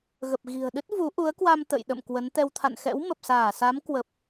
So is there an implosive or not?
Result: yes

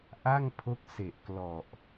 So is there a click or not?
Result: no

